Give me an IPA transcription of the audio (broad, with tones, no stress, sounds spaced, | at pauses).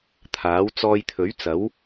t̪ʰ aː˨˥ w t͡s ɔː˧ j t̪ʰ ɵ˨˥ ɥ t͡s ɐ˨˥ w